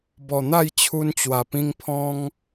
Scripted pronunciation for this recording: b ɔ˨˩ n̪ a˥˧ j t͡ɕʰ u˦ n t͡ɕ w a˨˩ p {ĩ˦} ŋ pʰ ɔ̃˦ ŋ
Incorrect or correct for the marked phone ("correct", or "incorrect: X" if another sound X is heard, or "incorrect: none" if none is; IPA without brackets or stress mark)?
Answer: correct